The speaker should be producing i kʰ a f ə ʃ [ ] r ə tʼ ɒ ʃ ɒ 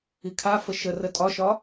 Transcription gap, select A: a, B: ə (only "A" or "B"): B